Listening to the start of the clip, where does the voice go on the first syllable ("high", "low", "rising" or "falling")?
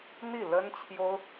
falling